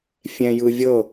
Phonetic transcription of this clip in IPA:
fʲ ɛ̃ j ɯ vʲ ɤ

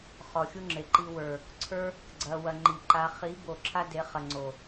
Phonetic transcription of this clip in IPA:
χ ɔ˨ xʲ u˦ ŋ͡ǁ e˨ ǃ i˧ w ə˞˨ | ǀʰ ə˞˦ | ɡ͡ǀ ɐ˧ w ɐ˧ ŋ͡ǃ i˨ ǃ a˧ χ i˨˦ b o˨ ǁʰ a˦ d e˨˦ χ ɐ˨ ŋ͡ǀ o˨

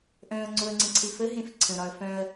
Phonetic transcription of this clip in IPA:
ʔ œ̃ ɐ̯ ŋ͡ǀ o ɐ̯ ŋ͡ǀ ə̃ ǀʰ e f ə ɦ ẽ f ǀʰ ə̃ ɾ ɒ ɐ̯ f œ̃ ɐ̯

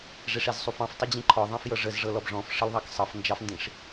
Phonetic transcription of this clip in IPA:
ʐ e ʂ e z sˤ u f ɑ̃ f tˤ ʊ d͡ʑ ĩ ǃʰ ɔ ðˤ ɑ̃ f j ɤ ʐ ə z ʐ ɤ l ɔ b ʐ ɔ̃ f ʂ ə l ðˤ ɑ k sˤ ɤ f n d͡ʒ ɑ f n d ĩ ʂ

